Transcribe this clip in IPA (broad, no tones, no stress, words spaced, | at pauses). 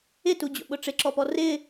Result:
ɪtud͡ʑo̰ɓʊ ʈ͡ʂɪǁɔpɔ rɪ